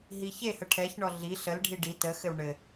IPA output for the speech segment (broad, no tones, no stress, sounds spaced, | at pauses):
ɦ i ç e h ə ʈʰ ɛ ç ɳ ɔ ɮ i ɬ ə l ɖʱ i ɖ i t ə x ɘ w ɳ ɘ